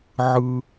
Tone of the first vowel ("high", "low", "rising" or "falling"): low